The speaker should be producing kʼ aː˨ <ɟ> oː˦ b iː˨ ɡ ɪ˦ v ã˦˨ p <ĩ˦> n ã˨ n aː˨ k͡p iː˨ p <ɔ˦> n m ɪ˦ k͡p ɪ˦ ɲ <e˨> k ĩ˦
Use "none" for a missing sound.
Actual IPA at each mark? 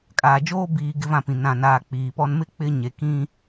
d͡ʒ, ĩ˨, ɔ˦, e˨

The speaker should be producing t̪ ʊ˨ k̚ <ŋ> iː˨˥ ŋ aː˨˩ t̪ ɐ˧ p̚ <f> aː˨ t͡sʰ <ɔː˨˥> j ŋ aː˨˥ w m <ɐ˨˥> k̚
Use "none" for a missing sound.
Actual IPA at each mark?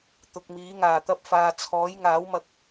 m, f, ɔː˨˥, ɐ˧

